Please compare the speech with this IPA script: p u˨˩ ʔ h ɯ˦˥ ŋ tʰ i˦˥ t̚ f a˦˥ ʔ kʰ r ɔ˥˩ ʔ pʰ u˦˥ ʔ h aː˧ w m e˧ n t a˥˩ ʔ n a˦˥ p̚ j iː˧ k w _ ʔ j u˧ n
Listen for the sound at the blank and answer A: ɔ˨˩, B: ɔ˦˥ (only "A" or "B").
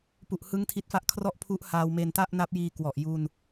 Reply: A